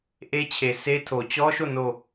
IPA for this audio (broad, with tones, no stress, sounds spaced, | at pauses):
ʔ e˦ t͡ɕʰ e˨ sʰ e˦ tʰ o˨ t͡ɕ ɔ˦ ʃ o˦˨ n o˦˨